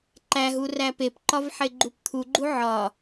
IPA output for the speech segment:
ǃ æ ɦ u r æ p e p ǃ ɒ v ħ e ɡ͡ǃ u p t̪ʰ u ɡ͡ǃ u ʕ ɒ

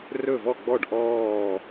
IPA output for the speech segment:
r ɵ˥˩ v ɔ˥˩ ɡ͡b ɔ˥˩ ɖ ʔ ɔː˥˩

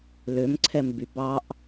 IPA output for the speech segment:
l ø m ǀʰ ɛ m b y b ɑ ʔ

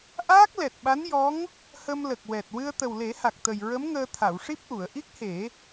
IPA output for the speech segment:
ʔ aː˦˥ k̚ l ɛ˨˩ t̚ ɓ a˧˥ n j ɔ˧˥ ŋ | h ə˧ m l ə˨˩ k̚ w ɛ˨˩ t̚ w ɨ˧ ə̯ t̪ ə˨˩ w l e˨˩˦ h a˨˩ k̚ t̪ ə˨˩ j ɹ ə˧˥ m ŋ əː˧ t̪ʰ a˨˩˨ w ʂ i˦˥ p̚ ʔ u˨˩˨ ə̯ ʔ i˦˥ k̚ h e˨˩˦

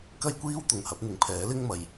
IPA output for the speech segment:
k ɐ˥ j kʷ iː˥ w t̪ ʊ˨ ŋ h ɐ˨˥ p̚ n̪ ɪ˨ ŋ pʰ ɛː˨˥ l ɪ˥ ŋ m ɐ˨ j

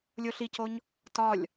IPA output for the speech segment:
lʲ o ɬ i c o ɲ | t ɒ lʲ

